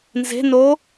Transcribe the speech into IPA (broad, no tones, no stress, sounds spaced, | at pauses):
n z e̤ n o